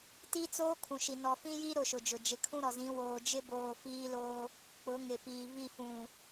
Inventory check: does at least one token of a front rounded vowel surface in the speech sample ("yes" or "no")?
no